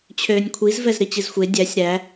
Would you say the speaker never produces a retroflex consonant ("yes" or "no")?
yes